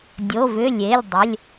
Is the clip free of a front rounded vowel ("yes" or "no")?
no